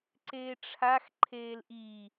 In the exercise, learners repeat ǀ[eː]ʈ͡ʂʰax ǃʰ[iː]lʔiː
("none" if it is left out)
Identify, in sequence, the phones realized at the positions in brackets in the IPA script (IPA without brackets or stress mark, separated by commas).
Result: eː, eː